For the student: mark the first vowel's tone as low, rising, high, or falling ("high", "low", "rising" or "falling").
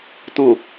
low